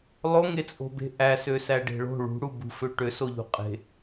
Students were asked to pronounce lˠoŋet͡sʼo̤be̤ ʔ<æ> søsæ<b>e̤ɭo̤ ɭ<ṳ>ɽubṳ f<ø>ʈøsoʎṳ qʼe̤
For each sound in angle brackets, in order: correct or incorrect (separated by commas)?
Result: correct, incorrect, correct, correct